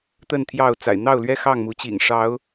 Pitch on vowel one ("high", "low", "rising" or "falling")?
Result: falling